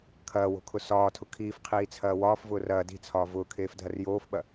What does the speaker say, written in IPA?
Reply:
kʰɐːwo̤kʰʊ sɒːtʰʊ kʰiːfqʰiːt͡sʰɐː wɒːfvʊː rɐː di̤t͡sʰɒː vʊːkʰeːfdʱɐr joːfɓɐ

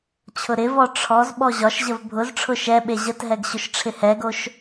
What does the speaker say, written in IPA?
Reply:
t͡ɕʰʊɾɪvɔ ʈ͡ʂʰɔz ɓɔʑɒʃʑəv bʱʊzʈ͡ʂʰʊ ʃɛɓe ʑətɦɛɡ ɕʊʃʈ͡ʂʰɪhɛɡoʃ

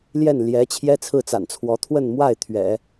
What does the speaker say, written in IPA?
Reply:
ljɛ˥˩n ljɛ˧˥ t͡ɕʰjɛ˥t͡sʰɹ̩˥˩t͡sa̰˨˩nt͡sʰwɔ˧˥ t̪ʰwə˥˧nmwa˥˩ɪ̯ t̪ʰɥɛ̰˨˩˦

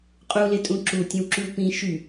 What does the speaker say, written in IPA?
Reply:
qʼulɪtʼũ ǁutʲə̃wǁyw pĩ ʃy

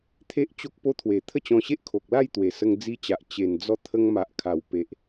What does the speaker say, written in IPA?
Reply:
t̪ʰe˦ʔt͡ɕo˦k̚po˦ t̪ʰwe˨˩t̪ʰə˥˧t͡ɕɔ̃˧ɕe˦ʔ kʰo˨k̚la˥˧jt̪we˨˩ sə˧ŋd͡zi˧t͡ɕa˨ʔ t͡ɕe˨˩nd͡zɔ˧ t̪ʰə˧ŋma˨ʔkʰa˨˩wpe˨ʔ

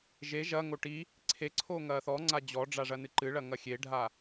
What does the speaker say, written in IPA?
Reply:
ʒe ʒɐŋo ʈi | ǀʰeǀʰoŋɐː θɔŋ͡ǀa d͡ʑɔɖ͡ʐaʐɐnɨ ǃɨɭɐŋɐ xʲeɖʱa

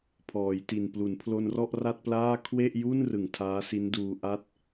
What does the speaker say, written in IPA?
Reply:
pʰɔː˩˦jti˨˩n plu˩˦npʰlo˧nrɔ˥˩ʔ ra˥˩t̚plaː˥˩ kʰwe˥˩ʔju˥˩n rɯ˨˩ŋtʰaː˦˥si˦˥nduː˧ ʔa˦˥t̚

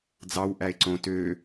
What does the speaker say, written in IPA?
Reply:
d͡zɑw ʔæe̯ǀõ tø

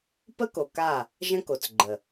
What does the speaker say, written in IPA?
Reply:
pə˦ko˨ ka˦˨ | ʒə̃˦ ko˨t͡sɡ͡ǃə˨

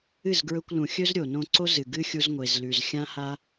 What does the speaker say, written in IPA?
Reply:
ɨ˦˨zɡɹɵ˧kʷlũ˨xʲɵ˦z ɾʲo˨nõ˧ ǀo˦zɨ˨ ɡɨ˦xʲu˧zŋʷe˨zlʉ˨z xʲã˦ha˦

